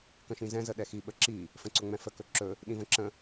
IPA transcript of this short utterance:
k ə̃ ʃ ĩ z ɛ̃ z ə ɗ ɛ x i ɓ ə ǁ i | f ə̃ ǀ ɵ ŋ͡m ɛ̃ f ə k ɵ ǁ ɵ | ɗ ĩ v ə̃ ǁ ə̃

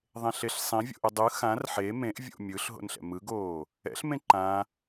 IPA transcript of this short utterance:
ðˤ ẽ ɬ e ɬ sˤ ĩ vʲ o̰ ʔ ɯ dˤ ɯ x ã r ħ e m ẽ ʔ vʲ o̰ mʲ ɯ ɬ ɦ o̰ n ɬ ɛ̰ m ɯ ɡ oː | ɛ̰ ɬ m ẽ ǃ ã

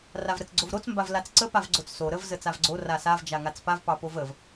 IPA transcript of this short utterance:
r a v ɾ ə t͡s ɡ͡ǀ o v ɾ o t͡s m b a v l a t͡s ǀ ə p a v ɡ͡ǀ o t͡s s o ɾ ə v z ə t͡s a v ɡ͡ǀ o r a s a v d͡ʒ a ŋ a t͡s p a v p ɑ p o v ə v

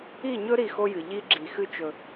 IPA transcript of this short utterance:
i˦˨ ɲ ɵ˦ ɾ i˦˨ x o˦ j ɨ˨ ʎ i˦ ɡ͡ǁ i˨ x ɨ˦ t͡ʃ ɵ˨

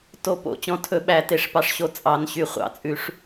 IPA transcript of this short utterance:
t o˨˩˦ p o̰˨˩˦ t͡ɕ ɔ̃˨ tʰ ɵ˨˩˦ ɓ æ˨˩˦ t e˨˩˦ ʂ p ɑ˨ ʂ ɕ o˨ t͡sʼ ɑ˨˩˦ n ɕ y˨˩˦ χʷ ɑ̰˨˩˦ t͡sʼ ʉ˨˩˦ ʂ

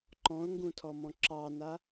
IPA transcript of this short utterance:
ǃ ɔ̃ ʊ̯ ŋ ɡ ũ tʰ ɔ m ɔ̃ ǁ ɑ n a

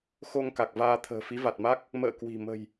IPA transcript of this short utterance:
x o˧ ŋ k a˨˩ k̚ v aː˧ t̪ʰ ə̤ː˨˩ f i˨˦ v a˨˩ t̚ m a˦˥ k̚ | m ə̰ː˧˨ k w i̤˨˩ m ə̤˨˩ j

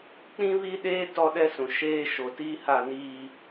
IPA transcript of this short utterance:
k͡p ĩ˦ β i˦ ɗ eː˦ t ɔ˦ ɗ ɛ˦ s ũ˨ ʃ eː˦ ʃ o˨ t iː˦ h a˦˨ n iː˦

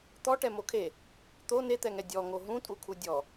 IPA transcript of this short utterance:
t̪ ɔ ʈ ɛ m o kʰ e | t̪ o n e t̪ ɛ ŋ ɛ dʲ ɔ ŋ o ɦ ũ tʼ u kʰ u dʲ ɔ

